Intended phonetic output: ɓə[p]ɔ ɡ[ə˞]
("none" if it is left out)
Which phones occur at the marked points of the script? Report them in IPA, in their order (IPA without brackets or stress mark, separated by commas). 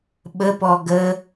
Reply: p, ə